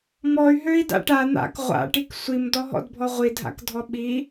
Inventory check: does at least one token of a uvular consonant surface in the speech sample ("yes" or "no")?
yes